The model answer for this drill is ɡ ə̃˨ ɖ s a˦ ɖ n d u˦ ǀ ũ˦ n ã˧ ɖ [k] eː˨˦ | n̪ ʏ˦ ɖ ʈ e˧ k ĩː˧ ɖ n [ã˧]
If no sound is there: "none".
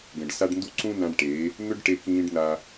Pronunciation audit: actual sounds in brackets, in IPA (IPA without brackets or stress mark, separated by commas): ʈ, a˧